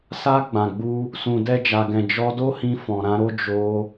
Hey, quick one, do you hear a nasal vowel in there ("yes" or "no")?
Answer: yes